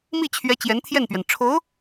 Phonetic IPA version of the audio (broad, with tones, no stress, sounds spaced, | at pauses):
m i˥˩ t͡ɕʰ ɥ ɛ˧˥ t͡ɕ j ɛ˧˥ n t̪ʰ j ɛ˥˩ n p ɥ ɛ˩ n ʈ͡ʂʰ o˧˥ ʊ̯